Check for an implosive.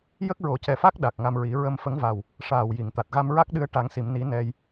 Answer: present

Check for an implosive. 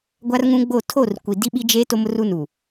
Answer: present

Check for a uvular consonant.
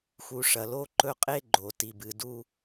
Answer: present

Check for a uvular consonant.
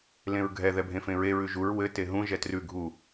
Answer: absent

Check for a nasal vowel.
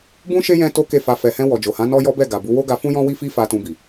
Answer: present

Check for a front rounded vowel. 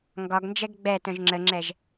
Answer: present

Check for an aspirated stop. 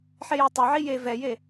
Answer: absent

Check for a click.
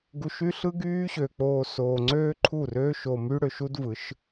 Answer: present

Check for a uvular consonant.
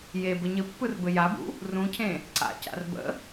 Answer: absent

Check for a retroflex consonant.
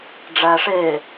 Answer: present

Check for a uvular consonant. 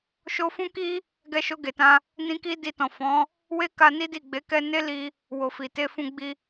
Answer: absent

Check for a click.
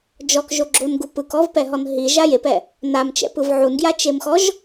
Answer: present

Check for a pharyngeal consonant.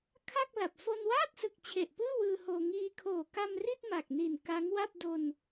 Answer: absent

